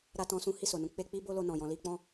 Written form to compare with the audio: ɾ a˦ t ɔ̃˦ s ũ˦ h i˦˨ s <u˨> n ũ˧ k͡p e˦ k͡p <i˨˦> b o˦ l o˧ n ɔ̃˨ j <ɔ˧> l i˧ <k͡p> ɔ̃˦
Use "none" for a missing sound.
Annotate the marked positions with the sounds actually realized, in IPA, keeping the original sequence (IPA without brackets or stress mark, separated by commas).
o˨, i˦, ɔ̃˧, k͡p